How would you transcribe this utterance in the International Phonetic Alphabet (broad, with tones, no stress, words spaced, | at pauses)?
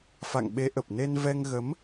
fa̰˧˨ŋɓe˨˦ʔə˨˩p̚ne˧n vɛ˧ŋɣə˨˦m